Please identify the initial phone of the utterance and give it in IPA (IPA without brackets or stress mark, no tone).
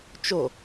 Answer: t͡ʃ